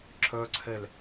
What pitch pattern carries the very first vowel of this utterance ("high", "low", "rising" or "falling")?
high